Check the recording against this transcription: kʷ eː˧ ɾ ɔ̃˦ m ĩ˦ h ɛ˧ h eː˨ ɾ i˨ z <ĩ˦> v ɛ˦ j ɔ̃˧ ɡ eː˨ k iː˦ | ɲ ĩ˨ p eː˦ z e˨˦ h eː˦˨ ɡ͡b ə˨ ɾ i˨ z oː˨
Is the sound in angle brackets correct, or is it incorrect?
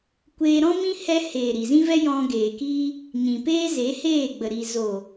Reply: correct